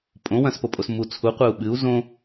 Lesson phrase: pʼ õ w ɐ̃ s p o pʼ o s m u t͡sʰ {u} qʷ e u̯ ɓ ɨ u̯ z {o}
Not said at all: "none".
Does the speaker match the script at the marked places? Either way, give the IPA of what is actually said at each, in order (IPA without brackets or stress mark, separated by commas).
u, õ